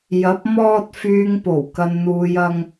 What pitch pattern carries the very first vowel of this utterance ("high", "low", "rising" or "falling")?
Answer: rising